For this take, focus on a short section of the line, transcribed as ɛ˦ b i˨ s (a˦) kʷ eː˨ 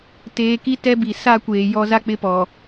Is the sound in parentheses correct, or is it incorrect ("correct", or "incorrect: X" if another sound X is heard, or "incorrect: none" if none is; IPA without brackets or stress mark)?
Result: correct